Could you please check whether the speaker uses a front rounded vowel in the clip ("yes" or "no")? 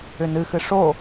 yes